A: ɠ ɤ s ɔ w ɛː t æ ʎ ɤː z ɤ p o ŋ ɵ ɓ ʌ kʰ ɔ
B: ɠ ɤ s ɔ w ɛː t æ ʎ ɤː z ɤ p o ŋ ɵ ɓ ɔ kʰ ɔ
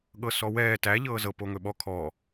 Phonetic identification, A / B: B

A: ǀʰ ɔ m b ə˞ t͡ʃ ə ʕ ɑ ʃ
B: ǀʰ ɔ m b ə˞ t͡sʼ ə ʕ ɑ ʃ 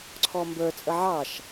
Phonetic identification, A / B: B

